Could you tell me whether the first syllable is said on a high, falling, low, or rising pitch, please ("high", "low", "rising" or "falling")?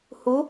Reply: rising